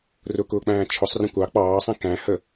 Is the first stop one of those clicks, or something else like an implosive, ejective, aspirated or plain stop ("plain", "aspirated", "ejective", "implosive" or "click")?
plain